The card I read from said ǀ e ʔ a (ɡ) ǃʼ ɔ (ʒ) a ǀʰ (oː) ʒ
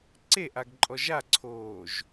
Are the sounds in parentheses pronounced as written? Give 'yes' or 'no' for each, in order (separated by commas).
yes, yes, yes